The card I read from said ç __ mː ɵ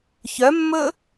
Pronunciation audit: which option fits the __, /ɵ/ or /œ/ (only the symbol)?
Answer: œ